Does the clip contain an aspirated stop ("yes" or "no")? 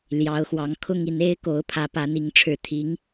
yes